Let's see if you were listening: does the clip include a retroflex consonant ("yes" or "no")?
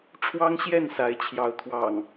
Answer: yes